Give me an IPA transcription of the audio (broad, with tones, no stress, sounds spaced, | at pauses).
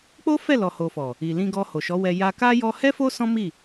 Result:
k͡p o˦ f ɛ˦˨ l ɔ˨ h o˨ f ɔ˨ | i˨ l ĩ˧ ɡ ɔ˧ h o˨ ʃ ɔ˨˦ w ɛ˧ j a˧ k a˦ j ɔ˧ h ɛ˦ f o˦ s ɔ̃˦ m i˦˨